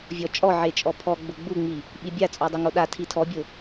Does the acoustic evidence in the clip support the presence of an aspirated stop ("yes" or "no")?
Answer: yes